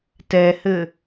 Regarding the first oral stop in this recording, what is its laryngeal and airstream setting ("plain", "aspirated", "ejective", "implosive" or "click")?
plain